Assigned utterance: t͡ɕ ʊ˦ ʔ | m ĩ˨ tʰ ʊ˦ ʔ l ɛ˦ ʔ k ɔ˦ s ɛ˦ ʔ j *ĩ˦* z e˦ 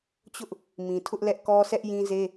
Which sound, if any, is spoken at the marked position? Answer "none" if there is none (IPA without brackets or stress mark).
ĩ˦